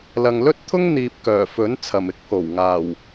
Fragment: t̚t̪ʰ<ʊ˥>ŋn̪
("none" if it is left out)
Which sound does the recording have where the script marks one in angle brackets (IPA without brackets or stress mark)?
ʊ˥